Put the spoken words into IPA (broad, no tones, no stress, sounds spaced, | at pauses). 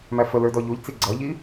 m æ f ə l ə˞ d ɔ ʎ u ʎ t͡s i ɡ͡ǀ ʌ ʎ i